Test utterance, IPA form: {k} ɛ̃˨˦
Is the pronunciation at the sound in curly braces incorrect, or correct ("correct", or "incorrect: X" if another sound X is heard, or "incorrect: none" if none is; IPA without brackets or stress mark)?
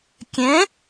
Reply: incorrect: kʲ